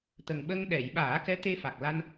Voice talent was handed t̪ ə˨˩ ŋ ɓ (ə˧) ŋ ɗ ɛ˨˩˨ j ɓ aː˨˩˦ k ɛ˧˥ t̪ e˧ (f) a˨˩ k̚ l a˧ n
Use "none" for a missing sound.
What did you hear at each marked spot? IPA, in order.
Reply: ə˧, f

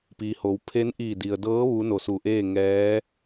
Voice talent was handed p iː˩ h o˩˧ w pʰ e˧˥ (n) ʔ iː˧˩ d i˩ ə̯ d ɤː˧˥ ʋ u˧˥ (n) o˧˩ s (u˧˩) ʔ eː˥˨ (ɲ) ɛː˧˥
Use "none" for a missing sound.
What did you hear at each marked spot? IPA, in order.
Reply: n, n, u˧˩, ŋ

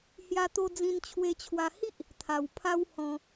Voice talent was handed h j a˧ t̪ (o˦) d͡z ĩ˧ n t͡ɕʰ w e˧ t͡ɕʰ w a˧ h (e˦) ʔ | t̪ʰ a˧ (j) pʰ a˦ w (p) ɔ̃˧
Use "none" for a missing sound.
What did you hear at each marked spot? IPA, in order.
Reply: o˧, i˦, w, h

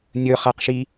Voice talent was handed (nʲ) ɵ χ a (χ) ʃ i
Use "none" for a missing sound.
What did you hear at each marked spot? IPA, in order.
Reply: nʲ, q

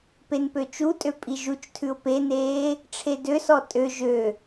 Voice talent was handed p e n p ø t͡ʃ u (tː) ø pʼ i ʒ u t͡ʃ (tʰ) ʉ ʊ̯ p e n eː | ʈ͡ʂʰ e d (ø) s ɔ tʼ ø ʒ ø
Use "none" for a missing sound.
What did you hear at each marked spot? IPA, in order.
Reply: tʼ, tʰ, ø

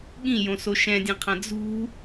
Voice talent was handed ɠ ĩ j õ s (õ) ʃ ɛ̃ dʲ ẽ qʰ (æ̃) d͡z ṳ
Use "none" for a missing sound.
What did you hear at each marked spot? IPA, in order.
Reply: o, ã

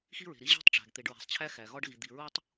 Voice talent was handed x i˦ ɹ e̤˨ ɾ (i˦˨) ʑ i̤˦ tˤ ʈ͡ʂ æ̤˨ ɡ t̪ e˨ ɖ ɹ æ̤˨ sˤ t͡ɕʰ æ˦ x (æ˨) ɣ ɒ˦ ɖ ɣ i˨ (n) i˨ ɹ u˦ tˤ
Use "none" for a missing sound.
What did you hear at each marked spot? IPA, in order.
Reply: i˦, æ˨, d̪

